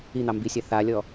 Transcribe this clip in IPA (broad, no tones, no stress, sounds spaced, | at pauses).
i n̪ ɑ m b i sʲ a θ a lʲ ɔ